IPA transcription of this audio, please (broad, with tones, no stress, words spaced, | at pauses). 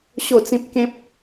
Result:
ɕo˥˧ t͡sĩ˦p̚ kẽ˦p̚